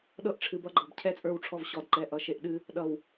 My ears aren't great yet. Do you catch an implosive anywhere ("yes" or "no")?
yes